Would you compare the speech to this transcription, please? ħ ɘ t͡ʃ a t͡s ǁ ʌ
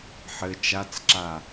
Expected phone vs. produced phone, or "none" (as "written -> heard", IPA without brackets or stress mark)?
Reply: ʌ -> a